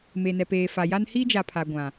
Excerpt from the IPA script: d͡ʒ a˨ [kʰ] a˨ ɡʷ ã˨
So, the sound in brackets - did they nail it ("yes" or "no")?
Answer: no